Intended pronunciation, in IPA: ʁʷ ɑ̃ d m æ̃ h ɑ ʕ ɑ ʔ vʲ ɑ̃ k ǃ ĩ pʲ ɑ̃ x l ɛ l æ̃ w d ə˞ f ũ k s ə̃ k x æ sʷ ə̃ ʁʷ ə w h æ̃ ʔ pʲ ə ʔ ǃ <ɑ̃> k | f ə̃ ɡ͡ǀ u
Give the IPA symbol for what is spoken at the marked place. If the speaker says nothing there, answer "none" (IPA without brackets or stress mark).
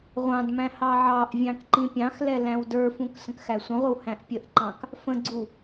ɑ̃